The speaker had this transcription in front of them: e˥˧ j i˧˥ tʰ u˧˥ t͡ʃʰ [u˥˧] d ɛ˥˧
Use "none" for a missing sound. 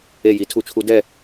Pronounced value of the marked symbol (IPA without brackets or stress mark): u˧˥